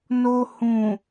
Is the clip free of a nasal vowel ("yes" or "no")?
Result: no